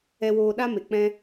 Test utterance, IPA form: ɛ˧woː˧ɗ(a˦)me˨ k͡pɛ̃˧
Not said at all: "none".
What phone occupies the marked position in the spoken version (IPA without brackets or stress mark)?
a˦